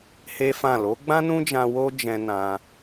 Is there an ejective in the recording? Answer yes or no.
no